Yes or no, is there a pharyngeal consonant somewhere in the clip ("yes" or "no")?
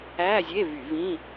no